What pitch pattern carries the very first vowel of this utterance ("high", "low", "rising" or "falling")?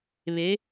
rising